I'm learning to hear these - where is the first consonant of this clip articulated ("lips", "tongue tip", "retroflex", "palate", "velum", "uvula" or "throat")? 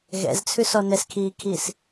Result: velum